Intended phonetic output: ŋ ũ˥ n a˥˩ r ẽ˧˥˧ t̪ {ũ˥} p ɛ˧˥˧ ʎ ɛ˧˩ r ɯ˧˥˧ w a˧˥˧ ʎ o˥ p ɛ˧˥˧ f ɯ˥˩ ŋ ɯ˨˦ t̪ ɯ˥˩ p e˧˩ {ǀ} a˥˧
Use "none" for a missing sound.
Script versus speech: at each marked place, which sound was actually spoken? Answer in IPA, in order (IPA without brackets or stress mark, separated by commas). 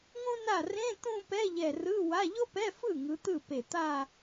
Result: ũ˥˧, t̪